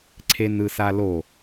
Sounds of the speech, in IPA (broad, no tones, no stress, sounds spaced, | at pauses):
ǀʰ e n ɯ s a l o